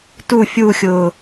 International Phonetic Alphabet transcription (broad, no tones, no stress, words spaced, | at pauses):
tu fʲuxʲʊː